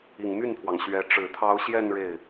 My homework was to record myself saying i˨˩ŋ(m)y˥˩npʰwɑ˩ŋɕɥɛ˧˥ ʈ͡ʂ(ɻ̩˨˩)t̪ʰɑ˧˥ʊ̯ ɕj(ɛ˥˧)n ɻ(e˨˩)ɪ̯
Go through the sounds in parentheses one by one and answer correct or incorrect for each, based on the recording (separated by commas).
correct, correct, correct, incorrect